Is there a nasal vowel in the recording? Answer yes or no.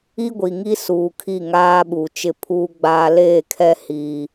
no